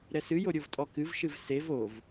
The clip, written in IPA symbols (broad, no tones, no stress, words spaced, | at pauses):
ɾɛsɨjo ɾʲovtʼɔkɨvʃɨv sev ov